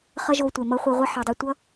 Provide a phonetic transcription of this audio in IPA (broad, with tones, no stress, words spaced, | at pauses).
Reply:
χʌ˦ʒo˧ tʷe˨mʌ˦χʷi˧ ʁʷʌ˦ħe˨dˤi˧ tʷʌ˦